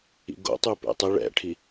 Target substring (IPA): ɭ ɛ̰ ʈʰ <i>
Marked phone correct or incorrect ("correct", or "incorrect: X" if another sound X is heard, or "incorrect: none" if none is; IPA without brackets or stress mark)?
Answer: correct